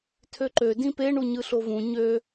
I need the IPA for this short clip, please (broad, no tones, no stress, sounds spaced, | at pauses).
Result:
tʰ ø ǃ ø d ĩ p e ɳ u ɲ ɯ ɬ o v ũ ɲ ø